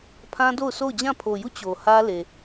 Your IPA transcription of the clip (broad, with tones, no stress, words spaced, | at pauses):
pʰã˦do˦˨ʊ̯ sʰo˦˨ʊ̯d͡ʑã˦˨pʰo˨ju˦˨ t͡ɕo˨hä˦le˨